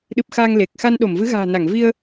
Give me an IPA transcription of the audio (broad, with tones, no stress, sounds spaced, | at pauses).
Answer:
ɗ ɨ˨˩ p̚ x aː˧ ŋ l e˨˩ k̚ x a˧ n ɗ o˧˩ m v ɨ˨˦ ɣ a̤ː˨˩ n a˧˩ ŋ v i˧ ə̯